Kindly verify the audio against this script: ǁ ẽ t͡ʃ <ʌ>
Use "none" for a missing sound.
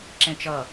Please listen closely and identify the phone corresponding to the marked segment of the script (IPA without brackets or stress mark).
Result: ʌ